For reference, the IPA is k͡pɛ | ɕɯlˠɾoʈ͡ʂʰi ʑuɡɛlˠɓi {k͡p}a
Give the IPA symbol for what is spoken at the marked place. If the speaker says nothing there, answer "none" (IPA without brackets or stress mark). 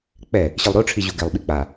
k͡p